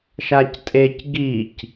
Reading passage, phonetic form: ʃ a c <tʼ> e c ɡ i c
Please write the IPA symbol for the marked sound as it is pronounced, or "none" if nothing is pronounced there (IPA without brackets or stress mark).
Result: tʼ